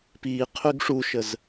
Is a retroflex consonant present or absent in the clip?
present